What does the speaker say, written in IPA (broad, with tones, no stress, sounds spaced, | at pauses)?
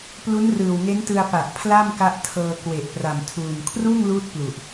p l u˦˥ n r ɯː˨˩ w ŋ e˦˥ n t ɯ˧ a̯ p a˨˩ ʔ pʰ l a˥˩ m k a˦˥ ʔ tʰ ɤː˧ k w e˨˩ ʔ p r a˨˩ m tʰ uː˨˩ n kʰ r uː˥˩ ŋ l uː˦˥ t̚ p l u˨˩ ʔ